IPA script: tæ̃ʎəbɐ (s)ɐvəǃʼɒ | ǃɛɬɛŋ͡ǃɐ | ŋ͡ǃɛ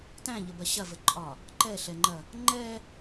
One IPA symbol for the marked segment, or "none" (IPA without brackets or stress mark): ɕ